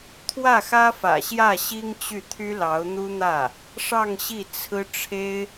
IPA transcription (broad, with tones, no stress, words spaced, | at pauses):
t̪ʰwä˥˩xä˥ fä̰˨˩ɕjä˥˩ ɕi˥ŋt͡ɕy˥˩ t̪ʰy˥lɑ˧˥ʊ̯n̪u˥n̪ä˥˩ | ʂɑ˥˧ŋ ɕi˥˩t͡sʰɹ̩˥ ʈ͡ʂʰe˥ɪ̯